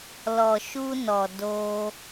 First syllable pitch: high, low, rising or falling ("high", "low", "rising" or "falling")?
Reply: low